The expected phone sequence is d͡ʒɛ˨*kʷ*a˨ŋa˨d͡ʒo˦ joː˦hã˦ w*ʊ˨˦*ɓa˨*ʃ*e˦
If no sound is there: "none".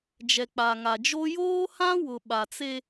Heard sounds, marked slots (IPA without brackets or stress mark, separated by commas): k͡p, ʊ˨, t͡s